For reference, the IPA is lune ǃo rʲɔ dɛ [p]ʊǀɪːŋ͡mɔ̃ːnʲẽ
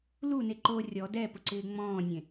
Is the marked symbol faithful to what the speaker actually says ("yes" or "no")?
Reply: yes